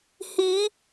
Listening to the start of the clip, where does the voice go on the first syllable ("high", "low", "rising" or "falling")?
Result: rising